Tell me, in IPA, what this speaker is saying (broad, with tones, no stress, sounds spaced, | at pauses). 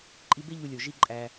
ǃʼ i˧ b e˥ ʎ u˧ lʲ o˩ ʒ i˧ ǃʼ æ˩